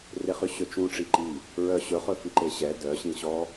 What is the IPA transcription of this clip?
r e χ y ɕ ø t͡ʃ ũ ʈ͡ʂ i ǃ i | ɹ œ ɕ ɵ χ ɵ f i ǃ e ɕ ɛ d œ ɕ ĩ ɕ ɔ

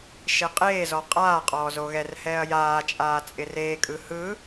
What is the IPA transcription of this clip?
ʃ e qʼ eː z ɔ qʼ aː qʼ ɔː z o ɣ ɛ r h ɛː ɐ̯ j aː t͡ʃʼ aː t͡sʼ ɪ r eː kʼ ɯ h ɯ

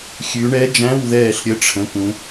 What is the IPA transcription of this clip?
xʲ ʉ˩˧ ɳ ɛ˧˥ d͡ʒ æ̃˧˥˧ w ð ɛː˦˨ ɬ ɾʲ ə˧˥ ʈ͡ʂʰ ə̃˩˧˩ k ũ˩˧

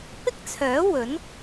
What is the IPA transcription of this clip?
p ɪ˥ k̚ t͡sʰ œː˨˥ w ɵ˨˥ n

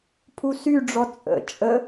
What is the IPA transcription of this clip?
pʰ u s y ɖ͡ʐ ɔ t͡sʼ ə̰ t͡ʃʼ ə

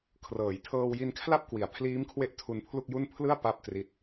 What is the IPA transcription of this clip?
kʰ r ɤː˩˦ j tʰ ɤː˧ w j i˧ n kʰ l a˥˩ p̚ k w i˨˩ a̯ pʰ l iː˦˥ m kʰ w e˦˥ ʔ tʰ u˧ n pʰ l u˥˩ k̚ j u˥˩ n pʰ l ɯ˥˩ a̯ p a˥˩ p̚ t r i˦˥ t̚

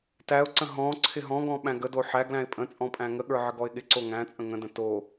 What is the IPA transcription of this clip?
t æ ʊ̯ ǀ ə̃ ɦ ɔ̃ ǀʰ ɪ ɦ ɔ̃ ɡ ɔ̃ ɓ æ̃ ɡ ə d o ħ æ ɡ l æ̃ ɪ̯ pʼ ə̃ t͡sʼ ɔ̃ pʼ æ̃ ŋ ə ɠ ə˞ ʕ ə ɡ ɔ ɪ̯ ɠ ɪ ǀ o ŋ æ̃ t͡sʼ ə̃ ŋ ə̃ d ə̃ t o

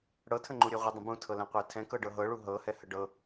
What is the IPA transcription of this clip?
ɽ ɤ tʰ ə̃ ŋ͡ǃ u ɾʲ e ʁʷ ə dˤ ə̃ b ũ tʰ ɤ l ɛ̃ qʷ ɛ tʰ ɛ̃ k ɤ ɖ ɤ ɦ ɤ ɭ u ɦ ɤ h ɛ h ə ɖ ɤ

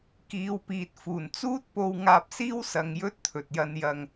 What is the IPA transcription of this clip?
k iː˨˧ w p iː˨ t̚ f uː˨˩ n t͡s uː˥ t̚ p o˧ w ŋ aː˧ p̚ s iː˥ w s ɐ˧ ŋ j ɵ˥ t̚ t̪ʰ ɵ˨ t̚ j ɐ˧ n j ɐ˧ ŋ

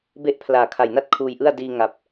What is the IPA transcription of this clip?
b e˥˩ ʔ pʰ l aː˨˩ kʰ a˨˩ j n a˥˩ t̚ kʰ uː˧ j ʔ ɯ˥˩ a̯ d iː˧ ŋ a˨˩ p̚

